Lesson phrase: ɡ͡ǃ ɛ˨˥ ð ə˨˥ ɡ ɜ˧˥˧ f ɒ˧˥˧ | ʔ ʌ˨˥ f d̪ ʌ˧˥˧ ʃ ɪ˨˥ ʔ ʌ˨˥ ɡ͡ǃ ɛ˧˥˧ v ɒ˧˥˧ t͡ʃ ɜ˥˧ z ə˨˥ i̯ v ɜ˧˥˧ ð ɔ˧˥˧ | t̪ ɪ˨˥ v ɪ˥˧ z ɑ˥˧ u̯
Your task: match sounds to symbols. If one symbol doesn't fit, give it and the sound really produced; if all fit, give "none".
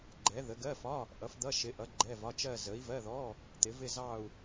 none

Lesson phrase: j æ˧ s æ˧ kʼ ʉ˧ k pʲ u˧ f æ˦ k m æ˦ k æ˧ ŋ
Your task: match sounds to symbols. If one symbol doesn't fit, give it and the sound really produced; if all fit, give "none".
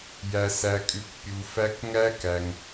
m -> ŋ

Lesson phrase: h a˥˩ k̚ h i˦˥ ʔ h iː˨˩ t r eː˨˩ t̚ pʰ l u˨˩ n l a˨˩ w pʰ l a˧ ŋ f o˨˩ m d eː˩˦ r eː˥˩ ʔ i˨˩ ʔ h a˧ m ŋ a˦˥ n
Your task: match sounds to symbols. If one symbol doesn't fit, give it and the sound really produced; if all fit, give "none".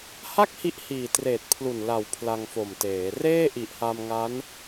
d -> t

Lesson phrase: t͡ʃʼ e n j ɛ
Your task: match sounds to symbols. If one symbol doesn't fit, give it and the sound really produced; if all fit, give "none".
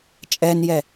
e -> ɛ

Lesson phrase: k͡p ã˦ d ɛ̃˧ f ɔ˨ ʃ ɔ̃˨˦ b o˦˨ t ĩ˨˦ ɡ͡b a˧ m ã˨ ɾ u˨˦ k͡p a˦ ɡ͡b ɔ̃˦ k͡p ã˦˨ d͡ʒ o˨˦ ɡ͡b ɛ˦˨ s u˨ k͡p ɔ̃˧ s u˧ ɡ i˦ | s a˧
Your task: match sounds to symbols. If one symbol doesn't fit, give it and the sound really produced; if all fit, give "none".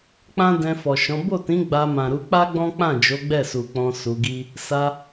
none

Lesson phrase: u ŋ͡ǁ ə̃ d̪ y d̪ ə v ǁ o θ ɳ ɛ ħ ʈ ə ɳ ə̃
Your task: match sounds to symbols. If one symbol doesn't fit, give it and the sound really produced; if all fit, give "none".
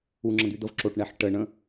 θ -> ʈ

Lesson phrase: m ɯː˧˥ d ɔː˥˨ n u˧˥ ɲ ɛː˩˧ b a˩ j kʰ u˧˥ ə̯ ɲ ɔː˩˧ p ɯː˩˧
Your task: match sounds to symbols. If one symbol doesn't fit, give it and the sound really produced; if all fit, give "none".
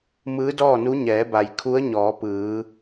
none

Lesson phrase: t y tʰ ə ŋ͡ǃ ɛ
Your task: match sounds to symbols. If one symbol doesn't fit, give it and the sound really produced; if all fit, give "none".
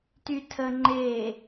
ɛ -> e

